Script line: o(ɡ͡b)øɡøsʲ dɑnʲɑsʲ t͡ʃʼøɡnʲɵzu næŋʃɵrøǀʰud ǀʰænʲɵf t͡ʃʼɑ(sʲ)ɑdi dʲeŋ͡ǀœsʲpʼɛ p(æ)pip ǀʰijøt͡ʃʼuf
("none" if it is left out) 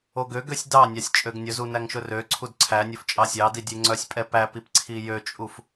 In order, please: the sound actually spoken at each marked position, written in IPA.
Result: ɡ, sʲ, æ

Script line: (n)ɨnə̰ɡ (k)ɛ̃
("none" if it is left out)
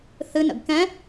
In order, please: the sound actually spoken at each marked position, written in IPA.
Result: θ, k

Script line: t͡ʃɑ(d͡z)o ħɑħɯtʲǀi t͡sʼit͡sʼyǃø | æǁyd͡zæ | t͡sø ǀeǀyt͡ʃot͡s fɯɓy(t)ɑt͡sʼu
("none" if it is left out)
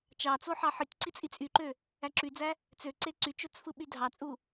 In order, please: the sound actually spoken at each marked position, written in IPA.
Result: t͡s, dʱ

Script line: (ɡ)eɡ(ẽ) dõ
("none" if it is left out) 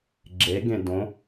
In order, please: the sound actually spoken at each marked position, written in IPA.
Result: ɡ͡ǁ, ẽ

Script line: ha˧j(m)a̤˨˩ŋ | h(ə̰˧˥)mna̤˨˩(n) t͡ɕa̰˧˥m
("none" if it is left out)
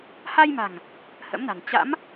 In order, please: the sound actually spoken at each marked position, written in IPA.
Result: m, ə̰˧˥, n

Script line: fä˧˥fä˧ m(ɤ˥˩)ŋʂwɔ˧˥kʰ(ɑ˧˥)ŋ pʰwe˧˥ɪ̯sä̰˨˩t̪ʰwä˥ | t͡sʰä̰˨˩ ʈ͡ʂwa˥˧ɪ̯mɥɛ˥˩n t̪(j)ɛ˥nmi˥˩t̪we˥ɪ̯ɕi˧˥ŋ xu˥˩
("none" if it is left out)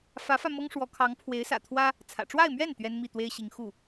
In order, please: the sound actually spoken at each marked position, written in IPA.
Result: ɤ˥, ɑ˧˥, ɥ

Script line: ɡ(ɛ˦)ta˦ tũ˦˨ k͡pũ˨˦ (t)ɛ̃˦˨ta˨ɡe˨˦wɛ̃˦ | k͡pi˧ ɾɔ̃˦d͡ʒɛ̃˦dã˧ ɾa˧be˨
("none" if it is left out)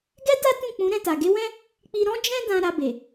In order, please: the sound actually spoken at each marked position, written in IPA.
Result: ɛ˦, ɾ

